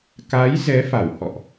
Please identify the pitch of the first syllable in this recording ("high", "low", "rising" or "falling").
rising